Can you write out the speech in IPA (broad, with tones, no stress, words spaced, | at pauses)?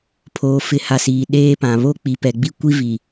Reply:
pʰoː˨fɪ˨˦ha˨siː˨ ɗeː˦pã˨ βo˦˨k͡pi˨pɛ˨ ɡ͡bi˦kʷi˦vi˨